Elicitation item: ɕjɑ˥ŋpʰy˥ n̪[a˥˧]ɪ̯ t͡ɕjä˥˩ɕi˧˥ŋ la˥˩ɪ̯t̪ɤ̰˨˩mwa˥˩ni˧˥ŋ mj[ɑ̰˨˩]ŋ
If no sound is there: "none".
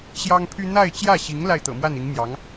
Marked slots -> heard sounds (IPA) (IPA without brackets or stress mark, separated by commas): a˥˧, ɑ˧˥